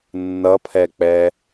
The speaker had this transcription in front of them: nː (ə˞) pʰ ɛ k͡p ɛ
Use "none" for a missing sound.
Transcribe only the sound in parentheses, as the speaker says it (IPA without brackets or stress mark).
ʌ